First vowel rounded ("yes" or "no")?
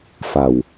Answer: no